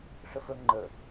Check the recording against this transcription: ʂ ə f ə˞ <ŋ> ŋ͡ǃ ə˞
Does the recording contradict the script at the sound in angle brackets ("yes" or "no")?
no